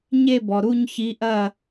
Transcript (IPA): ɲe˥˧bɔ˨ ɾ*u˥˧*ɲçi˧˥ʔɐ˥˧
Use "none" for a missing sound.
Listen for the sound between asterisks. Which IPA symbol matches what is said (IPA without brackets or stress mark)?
u˥˧